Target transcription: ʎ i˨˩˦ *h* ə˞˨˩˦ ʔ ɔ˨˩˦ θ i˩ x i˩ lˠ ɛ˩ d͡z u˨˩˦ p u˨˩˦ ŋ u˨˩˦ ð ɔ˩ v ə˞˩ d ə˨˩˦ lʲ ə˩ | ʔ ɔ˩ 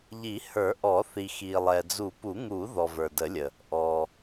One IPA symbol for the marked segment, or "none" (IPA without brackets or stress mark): h